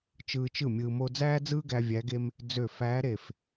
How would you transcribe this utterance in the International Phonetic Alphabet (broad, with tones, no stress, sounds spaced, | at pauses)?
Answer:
t͡ʃ ɯː˧ t͡ʃ ɯ˥˩ mʲ ɯː˧ m o˥ d͡z æː˥ d͡z ɯː˥ ɡ æ˧ vʲ æ˧˥ ɡ e˥ m | d͡z ø˧˩ f æː˧˥ ɾ e˧˩ f